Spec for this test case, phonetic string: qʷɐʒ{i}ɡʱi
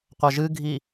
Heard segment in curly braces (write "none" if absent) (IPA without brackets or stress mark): ɨ